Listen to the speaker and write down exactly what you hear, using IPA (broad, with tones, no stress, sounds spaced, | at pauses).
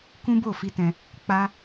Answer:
k ũ˦ b o˦˨ f i˧ t ɛ̃˧ | k͡p a˦